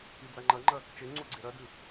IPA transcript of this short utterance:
i d͡z a ŋ͡ǃ ɐ ŋ͡ǃ ɐ | t͡ʃ e ŋ͡ǀ u ɡ͡ǀ e ɾ ɐ d ʉ

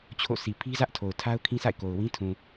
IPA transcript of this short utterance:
t͡ɕʰ o̰˦˨ sʰ i˨ pʰ i˦ z ä˦ ʔ tʰ o˨ ʊ̯ tʰ a˦ ʊ̯ kʰ ĩ˦ sʰ a̰˦˨ ɪ̯ k o˨ ʊ̯ w ĩ˦ tʰ ũ˨

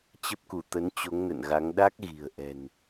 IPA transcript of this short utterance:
t͡ɕ ə˦˥ p̚ k u˧˩ t̪ ə˨˦ n t͡ɕ o˨˦ ŋ n ə̰˧˨ n ɣ a˨˦ ŋ ɗ a˦˥ k̚ ɣ i̤˨˩ ə̯ ʔ ɛ̤˨˩ n

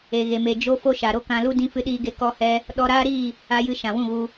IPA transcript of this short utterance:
e˨ ɣ e˨ m e˨ d͡ʒ o˦ f o˦ ʃ a˨ ɾ o˦ k ã˧ l u˦ d ĩ˧ f ɨ˧ ɗ iː˧ ɡ e˧ k ɔ˧ h ɛ˧ | ɗ ɔ˧ ɾ aː˦ ɾ iː˦˨ | a˧ j ɨ˧ ʃ ã˨ w ũ˦˨ ɣ u˧

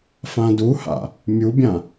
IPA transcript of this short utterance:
f ã d u h a̰ | mʲ u bʲ ã

